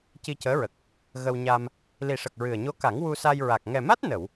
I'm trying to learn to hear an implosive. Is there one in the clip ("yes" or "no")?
no